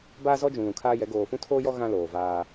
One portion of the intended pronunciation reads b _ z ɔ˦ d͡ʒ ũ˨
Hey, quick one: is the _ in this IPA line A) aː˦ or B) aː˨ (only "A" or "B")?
A